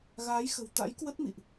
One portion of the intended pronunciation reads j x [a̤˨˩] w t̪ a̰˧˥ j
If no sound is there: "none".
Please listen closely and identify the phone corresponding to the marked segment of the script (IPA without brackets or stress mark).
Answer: ə̤˨˩